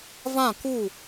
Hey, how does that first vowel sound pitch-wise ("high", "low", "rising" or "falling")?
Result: falling